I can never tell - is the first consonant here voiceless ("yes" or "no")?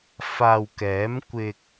yes